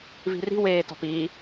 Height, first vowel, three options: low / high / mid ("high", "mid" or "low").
high